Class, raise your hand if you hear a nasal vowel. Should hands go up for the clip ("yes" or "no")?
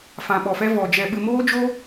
yes